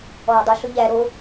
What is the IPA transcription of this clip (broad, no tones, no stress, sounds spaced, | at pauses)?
ɔː dˤ ɵ ɬ ɵ ʎ æ ɾ o